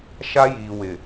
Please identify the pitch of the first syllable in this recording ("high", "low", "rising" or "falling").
high